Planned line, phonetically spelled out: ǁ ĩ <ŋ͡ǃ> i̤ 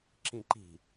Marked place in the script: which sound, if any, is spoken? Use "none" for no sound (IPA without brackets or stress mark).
ǃ